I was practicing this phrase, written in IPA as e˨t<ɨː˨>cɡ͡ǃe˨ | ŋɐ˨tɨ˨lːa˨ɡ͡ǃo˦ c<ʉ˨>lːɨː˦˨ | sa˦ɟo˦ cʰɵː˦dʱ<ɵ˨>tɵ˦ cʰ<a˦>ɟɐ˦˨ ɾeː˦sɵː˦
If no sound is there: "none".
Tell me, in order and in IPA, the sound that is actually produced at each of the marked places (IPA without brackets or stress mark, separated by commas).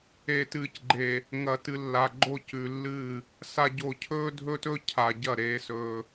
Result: ɨː˨, ʉ˨, ɵ˦, a˨